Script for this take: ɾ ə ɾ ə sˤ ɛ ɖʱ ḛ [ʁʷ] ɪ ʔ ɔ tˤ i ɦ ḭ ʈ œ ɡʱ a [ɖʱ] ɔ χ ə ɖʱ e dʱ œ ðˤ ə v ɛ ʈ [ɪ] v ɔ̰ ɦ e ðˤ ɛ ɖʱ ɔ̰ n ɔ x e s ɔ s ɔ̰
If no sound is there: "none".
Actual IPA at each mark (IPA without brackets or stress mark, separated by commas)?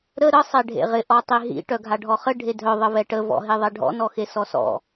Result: ʁ, ɖʱ, ə